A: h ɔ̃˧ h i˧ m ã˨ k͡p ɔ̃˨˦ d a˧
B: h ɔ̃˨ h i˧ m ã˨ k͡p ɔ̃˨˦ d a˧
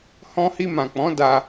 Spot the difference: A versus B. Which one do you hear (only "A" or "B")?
A